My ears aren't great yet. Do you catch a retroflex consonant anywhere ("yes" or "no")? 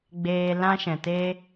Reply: no